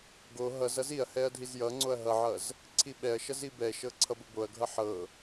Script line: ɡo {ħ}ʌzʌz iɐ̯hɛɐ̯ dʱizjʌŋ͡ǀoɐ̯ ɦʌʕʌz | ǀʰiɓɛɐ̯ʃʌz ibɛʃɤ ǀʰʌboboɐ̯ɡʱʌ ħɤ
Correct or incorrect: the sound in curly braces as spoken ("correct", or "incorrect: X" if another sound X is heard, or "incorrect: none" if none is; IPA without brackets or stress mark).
incorrect: ɦ